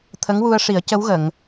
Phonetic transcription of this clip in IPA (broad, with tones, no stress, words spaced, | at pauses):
t̪ʰə˧˥ŋwu˧ə̯ʂi˨˩˦ə̯ cə˧˥wɣə˨˩˨ŋ